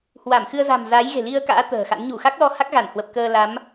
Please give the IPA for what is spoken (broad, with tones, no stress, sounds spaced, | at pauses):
h w a˧˩ m x ɨ˧ ə̯ z a̤˨˩ m z aː˨˦ j ɣ e̤˨˩ l i˧ ə̯ k a̰ː˧˥ t̪ ə̤ː˨˩ x a̰˧˥ n ɲ u˧˩ x a˦˥ k̚ l ɔ˧ h a˦˥ k̚ ɣ a˧˩ n h w ə˨˩ p̚ k əː˧ l a˨˦ m